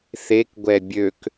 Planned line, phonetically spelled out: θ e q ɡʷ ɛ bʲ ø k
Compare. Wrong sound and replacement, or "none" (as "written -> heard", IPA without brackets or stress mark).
q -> k